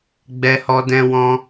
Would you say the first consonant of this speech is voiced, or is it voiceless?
voiced